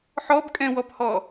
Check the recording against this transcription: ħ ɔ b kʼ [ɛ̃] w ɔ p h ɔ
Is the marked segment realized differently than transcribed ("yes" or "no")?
no